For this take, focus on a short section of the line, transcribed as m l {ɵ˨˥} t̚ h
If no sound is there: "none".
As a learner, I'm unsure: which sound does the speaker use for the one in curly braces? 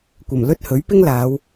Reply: ɵ˥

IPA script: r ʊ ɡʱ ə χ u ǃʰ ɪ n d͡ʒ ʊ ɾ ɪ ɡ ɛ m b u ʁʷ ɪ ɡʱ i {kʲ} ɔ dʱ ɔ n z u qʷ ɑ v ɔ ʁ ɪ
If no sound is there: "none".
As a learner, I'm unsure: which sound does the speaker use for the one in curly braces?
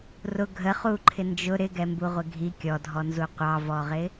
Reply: kʲ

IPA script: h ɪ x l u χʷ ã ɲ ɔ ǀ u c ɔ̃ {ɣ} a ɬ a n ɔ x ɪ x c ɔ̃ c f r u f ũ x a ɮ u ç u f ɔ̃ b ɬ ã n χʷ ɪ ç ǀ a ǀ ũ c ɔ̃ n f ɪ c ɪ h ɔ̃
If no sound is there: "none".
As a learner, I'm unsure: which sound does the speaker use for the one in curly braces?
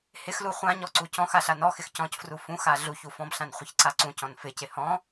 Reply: x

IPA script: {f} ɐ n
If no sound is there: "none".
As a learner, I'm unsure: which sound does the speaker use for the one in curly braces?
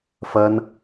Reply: f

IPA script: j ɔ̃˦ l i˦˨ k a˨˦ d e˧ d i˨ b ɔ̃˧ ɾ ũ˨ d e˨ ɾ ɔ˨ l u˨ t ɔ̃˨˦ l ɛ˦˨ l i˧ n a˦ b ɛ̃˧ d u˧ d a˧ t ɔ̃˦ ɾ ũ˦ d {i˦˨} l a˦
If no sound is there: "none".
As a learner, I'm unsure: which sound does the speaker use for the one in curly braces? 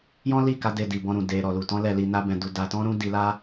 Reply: i˧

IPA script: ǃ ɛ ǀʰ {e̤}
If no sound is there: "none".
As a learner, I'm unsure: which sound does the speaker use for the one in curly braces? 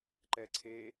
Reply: e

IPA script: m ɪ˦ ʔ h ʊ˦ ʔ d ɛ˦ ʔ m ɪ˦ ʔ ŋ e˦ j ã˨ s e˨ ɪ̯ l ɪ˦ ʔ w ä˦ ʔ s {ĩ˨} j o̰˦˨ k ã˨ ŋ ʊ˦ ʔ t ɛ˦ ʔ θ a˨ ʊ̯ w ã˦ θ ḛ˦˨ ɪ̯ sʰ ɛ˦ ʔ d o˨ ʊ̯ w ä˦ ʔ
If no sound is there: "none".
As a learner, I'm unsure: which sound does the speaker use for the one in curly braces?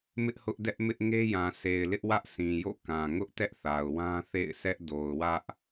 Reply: ĩ˨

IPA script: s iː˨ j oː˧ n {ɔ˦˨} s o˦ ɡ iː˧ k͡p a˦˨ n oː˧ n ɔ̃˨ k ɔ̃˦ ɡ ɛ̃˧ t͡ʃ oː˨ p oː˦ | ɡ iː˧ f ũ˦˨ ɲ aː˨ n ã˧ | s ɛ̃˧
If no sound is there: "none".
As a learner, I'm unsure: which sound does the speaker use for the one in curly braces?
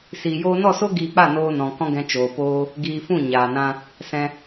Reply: ɔ˦˨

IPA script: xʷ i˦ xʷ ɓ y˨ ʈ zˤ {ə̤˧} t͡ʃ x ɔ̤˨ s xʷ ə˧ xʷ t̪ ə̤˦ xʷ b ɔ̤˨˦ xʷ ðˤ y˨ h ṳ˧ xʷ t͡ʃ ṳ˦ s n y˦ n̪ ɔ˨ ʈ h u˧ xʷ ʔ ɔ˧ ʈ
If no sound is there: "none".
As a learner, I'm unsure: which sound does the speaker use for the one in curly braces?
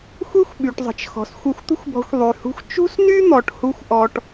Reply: ə̤˨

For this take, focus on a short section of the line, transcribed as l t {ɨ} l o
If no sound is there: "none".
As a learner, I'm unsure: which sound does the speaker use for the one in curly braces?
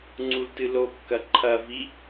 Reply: ɨ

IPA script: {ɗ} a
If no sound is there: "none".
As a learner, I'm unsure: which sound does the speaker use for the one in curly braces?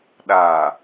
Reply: ɗ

